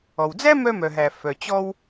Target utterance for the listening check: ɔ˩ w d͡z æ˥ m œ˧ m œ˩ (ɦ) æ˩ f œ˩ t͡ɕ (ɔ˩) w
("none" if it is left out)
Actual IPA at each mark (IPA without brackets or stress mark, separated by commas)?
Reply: ɦ, ɔ˧